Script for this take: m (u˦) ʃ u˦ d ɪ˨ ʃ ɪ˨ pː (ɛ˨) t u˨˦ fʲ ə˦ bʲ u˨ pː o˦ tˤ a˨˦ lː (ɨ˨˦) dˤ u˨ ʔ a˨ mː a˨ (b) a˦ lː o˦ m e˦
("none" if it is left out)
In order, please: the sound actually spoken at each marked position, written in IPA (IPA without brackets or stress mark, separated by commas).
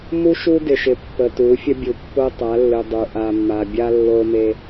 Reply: u˦, ə˨, ɨ˨, bʲ